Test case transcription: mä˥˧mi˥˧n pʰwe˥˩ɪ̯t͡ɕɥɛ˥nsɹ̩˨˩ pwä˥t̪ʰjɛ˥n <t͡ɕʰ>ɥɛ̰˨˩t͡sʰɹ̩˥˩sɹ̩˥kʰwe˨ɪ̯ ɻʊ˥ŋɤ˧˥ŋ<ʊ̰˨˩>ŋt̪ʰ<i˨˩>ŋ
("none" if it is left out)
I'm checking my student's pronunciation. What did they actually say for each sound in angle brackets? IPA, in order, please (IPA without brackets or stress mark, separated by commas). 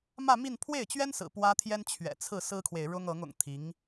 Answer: t͡ɕʰ, ʊ̰˨˩, i˧˥